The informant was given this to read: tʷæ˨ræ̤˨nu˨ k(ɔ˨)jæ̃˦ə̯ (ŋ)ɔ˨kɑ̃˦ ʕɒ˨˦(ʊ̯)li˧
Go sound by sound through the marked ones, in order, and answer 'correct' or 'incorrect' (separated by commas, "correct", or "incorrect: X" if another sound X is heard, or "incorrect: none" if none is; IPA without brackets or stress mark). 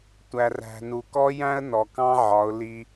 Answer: incorrect: ɔ˦, incorrect: n, correct